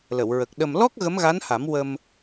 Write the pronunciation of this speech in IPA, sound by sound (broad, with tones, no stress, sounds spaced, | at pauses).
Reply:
l ə˨˩˨ w ɹ ə˨˩ k̚ ɗ ə˨˩ m l ɔ˦˥ k̚ ɣ ə˧˥ m ɣ a˧˥ n h a˨˩˦ m w ə˧ m